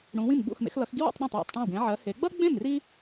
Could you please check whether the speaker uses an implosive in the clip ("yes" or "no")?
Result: yes